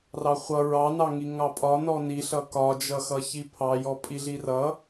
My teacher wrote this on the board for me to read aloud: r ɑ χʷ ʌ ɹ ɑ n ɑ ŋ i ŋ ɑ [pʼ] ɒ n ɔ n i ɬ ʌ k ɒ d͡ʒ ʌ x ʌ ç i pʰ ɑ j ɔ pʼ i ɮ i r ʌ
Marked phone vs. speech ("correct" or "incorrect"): correct